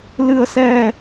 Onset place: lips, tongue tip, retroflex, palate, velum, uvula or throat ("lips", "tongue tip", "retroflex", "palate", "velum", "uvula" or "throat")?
tongue tip